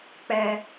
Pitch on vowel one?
low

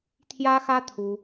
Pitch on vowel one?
high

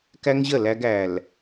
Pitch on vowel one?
high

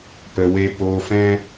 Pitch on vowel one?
low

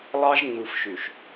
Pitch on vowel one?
high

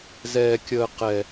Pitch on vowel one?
high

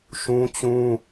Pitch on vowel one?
high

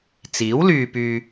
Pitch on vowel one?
rising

